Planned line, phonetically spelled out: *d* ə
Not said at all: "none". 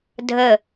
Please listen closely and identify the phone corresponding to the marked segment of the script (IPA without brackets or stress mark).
dʱ